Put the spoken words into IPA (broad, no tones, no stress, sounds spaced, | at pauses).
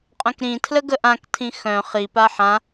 qʼ œ̃ k ɾ ĩ tʰ l ə ɡ ə ʔ ã k tʰ ĩ x œ̃ χ i p a ħ ã